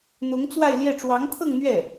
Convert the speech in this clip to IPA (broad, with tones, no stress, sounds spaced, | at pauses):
n̪ ʊ˧˥ ŋ t͡s w a˥˧ ɪ̯ l j ɛ˥˩ ʈ͡ʂ w ɑ˧˥ ŋ t̪ʰ ɤ˥˧ ŋ n̪ ɥ ɛ˥˩